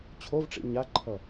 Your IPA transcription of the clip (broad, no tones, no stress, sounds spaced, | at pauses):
t͡ɕʰ o v ʈ͡ʂ ḭ ɲ a ǃʰ ʌ